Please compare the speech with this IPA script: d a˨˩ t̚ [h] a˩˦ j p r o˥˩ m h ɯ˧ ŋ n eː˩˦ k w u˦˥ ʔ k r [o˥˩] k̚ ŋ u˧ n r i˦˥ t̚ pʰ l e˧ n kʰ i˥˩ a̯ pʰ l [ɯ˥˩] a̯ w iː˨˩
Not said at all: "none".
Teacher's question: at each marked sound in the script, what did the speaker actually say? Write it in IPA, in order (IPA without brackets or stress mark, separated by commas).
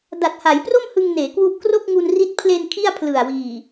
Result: h, o˥˩, ɯ˨˩